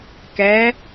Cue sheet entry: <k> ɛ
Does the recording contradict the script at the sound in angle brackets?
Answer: no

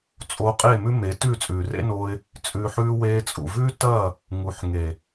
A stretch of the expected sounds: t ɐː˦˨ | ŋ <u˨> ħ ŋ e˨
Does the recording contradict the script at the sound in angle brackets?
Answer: no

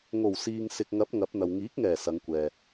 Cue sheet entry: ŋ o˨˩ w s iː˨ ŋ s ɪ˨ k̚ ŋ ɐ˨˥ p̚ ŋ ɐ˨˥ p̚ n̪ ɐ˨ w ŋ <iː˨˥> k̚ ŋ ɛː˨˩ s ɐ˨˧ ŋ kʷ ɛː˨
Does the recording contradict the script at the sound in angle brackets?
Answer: no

